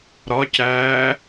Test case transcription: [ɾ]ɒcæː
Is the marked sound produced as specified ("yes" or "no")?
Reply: yes